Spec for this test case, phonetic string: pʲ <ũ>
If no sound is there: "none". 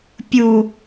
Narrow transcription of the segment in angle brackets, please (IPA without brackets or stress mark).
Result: u